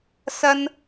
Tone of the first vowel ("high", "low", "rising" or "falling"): high